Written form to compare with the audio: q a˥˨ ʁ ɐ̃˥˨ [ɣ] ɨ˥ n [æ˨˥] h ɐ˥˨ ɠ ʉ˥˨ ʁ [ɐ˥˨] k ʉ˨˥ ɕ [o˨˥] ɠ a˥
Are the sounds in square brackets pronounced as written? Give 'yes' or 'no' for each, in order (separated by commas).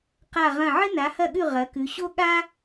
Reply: no, no, no, no